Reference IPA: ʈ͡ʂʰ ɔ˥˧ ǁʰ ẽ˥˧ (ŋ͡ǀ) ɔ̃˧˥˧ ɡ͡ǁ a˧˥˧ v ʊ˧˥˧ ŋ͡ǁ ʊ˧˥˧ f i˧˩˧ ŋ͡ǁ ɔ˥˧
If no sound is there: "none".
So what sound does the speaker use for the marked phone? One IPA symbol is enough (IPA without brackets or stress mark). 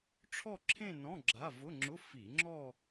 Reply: n